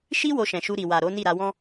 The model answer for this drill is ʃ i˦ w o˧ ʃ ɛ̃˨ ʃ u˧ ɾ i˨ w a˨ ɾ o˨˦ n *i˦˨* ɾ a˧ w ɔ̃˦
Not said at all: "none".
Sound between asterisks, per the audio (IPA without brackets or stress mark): i˦˨